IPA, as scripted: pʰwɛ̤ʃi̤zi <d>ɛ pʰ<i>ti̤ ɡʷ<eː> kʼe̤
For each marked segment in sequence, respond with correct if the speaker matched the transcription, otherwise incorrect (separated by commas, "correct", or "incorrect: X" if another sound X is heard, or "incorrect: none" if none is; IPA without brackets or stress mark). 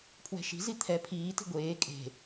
incorrect: t̪ʰ, incorrect: iː, correct